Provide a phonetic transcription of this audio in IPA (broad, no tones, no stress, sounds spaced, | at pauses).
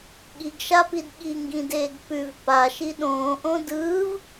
ɠ i ɡ ʃ a p i d ɠ i ŋ ɡ ĩ d eː ɡ p ʉ v p a ʃ i ɗ õː ʔ õ d ɯː v